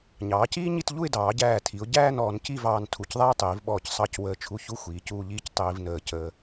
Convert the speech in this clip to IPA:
ɲ ɑː˩˧ c iː˥ ɲ i˥˧ t ʎ u˥˧ ɪ̯ d ɑː˩˧ ɟ æː˧˩ tʰ i˩˧ ʊ̯ ɟ æː˥˧ n ɔː˩˧ n c i˥˧ v ɑː˧ n tʰ u˧˩ c ðˤ æ˥ ʊ̯ tˤ iː˩˧ v ɓ ɔː˧˩ c sˤ ɑ˧˩ c w əː˧˩ t͡ʃʰ u˧ ç u˥˧ xʷ iː˩˧ c uː˧ ʎ iː˥˧ c tˤ iː˧ v n əː˧˩ c əː˧

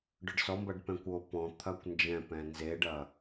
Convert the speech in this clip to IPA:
ɖ ʊ ɖ s ɔ m b ɐ ɖ p ɛ̃ kʷ o p ɔ̃ t̪ʰ ɐ kʷ n d͡ʒ ɛ̃ p ɛ̃ n z e ɖ ɐ

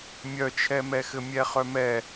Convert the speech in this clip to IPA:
mʲ œ t͡ʃʰ ɛ m ɛ x ɘ mʲ ɛ χ œ m ɛ

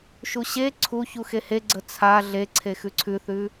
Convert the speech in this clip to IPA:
ʃ u ɕ e ǀʰ u ç u x e h e ɡ͡ǀ ə t͡sʰ a ɮ e ǀʰ e x ʉ ǀʰ ʉ θ ʉ

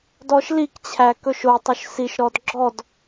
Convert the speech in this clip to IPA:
d ɔ ʃ l i k t͡ɕʰ æ k ɵ ʃ o tˤ ɵ ʃ s i ʃ ɾ ɔ d ɡ͡ǁ ɔ d

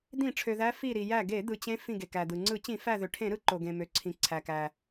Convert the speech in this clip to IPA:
d̪ ĩ˧˩˧ ʈ͡ʂʰ ø˩ ð æ˨˦ f i˧˩ ɾ i˩ j æ˧˩ ɡ e˧˩˧ d̪ ɯ˩ t͡ɕ ẽ˨˦ f ĩ˧˩ ɡ e˩ k æ˩ d̪ ɯ˩ ŋ͡ǀ ɯ˧˩˧ t͡ɕ ĩ˧˩˧ f æ˧˩ ð ø˩ ʈʰ ẽ˧˩˧ ɾ ɯ˨˦ ǃ o˩ ɡ ẽ˩ m ø˩ ǀʰ ĩ˩ ǀʰ æ˩ k æ˩

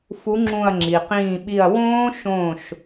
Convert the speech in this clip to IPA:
f u˨˥ ŋ͡ǁ ũ˧˩ ɐ̯ ŋ͡ǁ i˩ q ĩː˧˩ ɓ i˧˩ ɐ̯ w õː˦˥ ʃ õː˧˩ ʃ

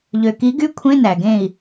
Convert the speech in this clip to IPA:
ʎ ø˩ k i˩˥ ɡ y˧˥˧ kʷʰ ẽ˧˥˧ n æ˩ ɡ ẽ˧˩ i̯

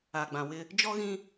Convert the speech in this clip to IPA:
a˨ ɡ͡b ã˨ w ɪ˦ | d͡ʒ ɔ˦ ɣ ĩ˦

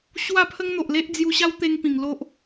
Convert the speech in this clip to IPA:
ɕ w a˥˧ pʰ ə˦ ŋ n̪ o˨ ʔ l e˦ ʔ d͡z j u˧ ɕ a˦ w t̪ e˧ ŋ p ĩ˨˩ ŋ l o˦ ʔ

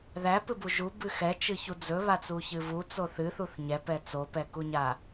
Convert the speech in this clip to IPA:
ð æ p ɨ b u ʒ u b ɨ x ɛ t͡ʃ ɨ ç u d͡z ɵ β a t͡s u ç ɨ v u t͡s o θ ɨ θ u θ ɲ ɛ p ɛ t͡s o p ɛ k u ɲ a

